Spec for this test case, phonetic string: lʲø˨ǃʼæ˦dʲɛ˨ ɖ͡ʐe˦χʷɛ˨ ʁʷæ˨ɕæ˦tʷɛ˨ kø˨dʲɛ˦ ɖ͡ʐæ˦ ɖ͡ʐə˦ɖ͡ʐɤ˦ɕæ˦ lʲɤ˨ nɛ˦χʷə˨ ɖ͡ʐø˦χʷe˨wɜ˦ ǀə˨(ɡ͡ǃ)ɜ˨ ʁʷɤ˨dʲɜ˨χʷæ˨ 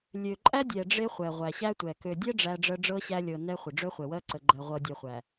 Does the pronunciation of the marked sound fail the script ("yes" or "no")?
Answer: no